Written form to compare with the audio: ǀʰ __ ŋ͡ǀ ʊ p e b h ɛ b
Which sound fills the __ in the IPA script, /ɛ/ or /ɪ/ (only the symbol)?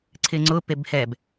ɪ